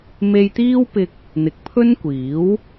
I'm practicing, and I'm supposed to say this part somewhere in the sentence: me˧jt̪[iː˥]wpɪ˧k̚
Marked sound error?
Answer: no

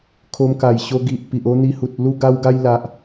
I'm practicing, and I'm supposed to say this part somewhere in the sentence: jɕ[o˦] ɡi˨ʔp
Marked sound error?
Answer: yes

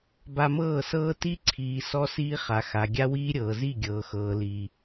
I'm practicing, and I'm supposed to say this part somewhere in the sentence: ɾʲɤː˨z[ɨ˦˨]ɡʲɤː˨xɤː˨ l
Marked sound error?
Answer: yes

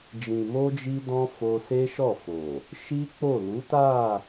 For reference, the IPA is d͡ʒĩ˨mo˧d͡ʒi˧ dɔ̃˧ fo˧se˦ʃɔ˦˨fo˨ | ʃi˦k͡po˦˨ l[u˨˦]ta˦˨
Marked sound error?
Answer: no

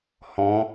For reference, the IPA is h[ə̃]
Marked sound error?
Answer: yes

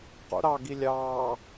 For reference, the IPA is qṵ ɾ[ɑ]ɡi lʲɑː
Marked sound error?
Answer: no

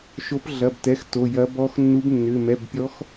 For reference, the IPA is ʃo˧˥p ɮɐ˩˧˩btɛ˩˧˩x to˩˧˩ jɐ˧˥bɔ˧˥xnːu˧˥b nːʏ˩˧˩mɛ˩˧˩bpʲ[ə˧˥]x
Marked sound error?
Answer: yes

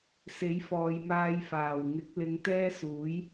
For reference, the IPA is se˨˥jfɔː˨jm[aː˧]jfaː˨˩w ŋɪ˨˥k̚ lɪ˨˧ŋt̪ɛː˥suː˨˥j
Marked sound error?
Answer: no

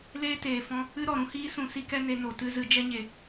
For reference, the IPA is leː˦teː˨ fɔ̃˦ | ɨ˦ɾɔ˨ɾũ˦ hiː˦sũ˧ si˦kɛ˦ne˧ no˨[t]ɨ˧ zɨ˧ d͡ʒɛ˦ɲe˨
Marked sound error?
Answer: no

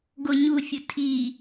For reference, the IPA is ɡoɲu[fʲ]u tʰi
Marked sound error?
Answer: no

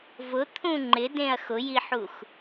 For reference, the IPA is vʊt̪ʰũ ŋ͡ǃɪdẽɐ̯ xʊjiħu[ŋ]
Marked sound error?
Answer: yes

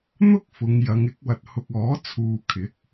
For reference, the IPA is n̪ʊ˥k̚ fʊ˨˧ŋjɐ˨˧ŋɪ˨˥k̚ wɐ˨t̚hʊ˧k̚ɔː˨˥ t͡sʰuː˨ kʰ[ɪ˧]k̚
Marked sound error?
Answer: yes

